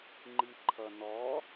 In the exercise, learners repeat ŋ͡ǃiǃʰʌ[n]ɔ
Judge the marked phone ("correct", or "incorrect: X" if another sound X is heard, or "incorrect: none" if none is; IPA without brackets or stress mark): correct